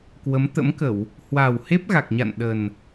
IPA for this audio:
k w ə˨˦ m t̪ ə̰˧˥ m k ə˧˩˨ w | h w a˨˩ w h e˦˥ p̚ ɣ a˨˩ k̚ ɲ a̰˧˨ n ɗ ə˨˩ n

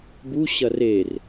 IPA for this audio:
b u ɕ ɐ r e r

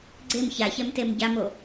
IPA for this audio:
ɡ͡ǀ e m ç a ç ɛ m t e m ɟ a m o

